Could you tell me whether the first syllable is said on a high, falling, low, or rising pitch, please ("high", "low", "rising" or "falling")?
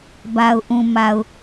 low